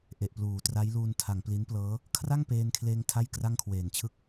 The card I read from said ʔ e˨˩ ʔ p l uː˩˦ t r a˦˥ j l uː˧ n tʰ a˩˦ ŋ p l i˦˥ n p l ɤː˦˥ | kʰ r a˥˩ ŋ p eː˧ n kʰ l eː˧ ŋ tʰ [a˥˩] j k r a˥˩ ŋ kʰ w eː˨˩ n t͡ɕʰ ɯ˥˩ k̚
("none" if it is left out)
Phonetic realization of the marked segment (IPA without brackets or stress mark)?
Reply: a˥˩